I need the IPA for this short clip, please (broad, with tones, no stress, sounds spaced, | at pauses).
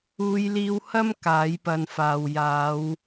uː˨˧ j l iː˧ w h ɐ˥ m k aː˨˥ j p ɐ˨˧ n f aː˨ w j aː˨˧ w